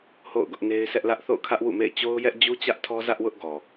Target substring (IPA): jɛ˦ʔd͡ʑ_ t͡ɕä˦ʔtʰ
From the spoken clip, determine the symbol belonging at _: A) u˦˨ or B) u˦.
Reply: B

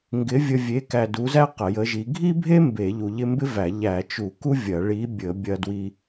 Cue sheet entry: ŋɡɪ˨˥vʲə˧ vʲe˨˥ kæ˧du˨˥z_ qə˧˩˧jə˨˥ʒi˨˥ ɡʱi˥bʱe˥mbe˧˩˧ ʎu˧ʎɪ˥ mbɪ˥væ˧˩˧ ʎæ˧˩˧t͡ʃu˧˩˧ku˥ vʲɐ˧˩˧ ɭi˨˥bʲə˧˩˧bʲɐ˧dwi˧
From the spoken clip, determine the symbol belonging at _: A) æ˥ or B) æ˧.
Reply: A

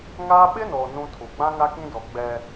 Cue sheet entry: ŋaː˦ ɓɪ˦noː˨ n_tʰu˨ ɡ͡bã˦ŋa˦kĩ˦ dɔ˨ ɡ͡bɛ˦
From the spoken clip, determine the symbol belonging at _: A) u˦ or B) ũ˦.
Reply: B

